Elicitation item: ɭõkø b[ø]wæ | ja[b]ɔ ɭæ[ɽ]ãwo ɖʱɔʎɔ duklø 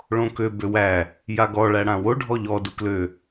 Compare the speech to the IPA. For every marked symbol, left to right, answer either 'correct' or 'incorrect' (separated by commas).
correct, incorrect, correct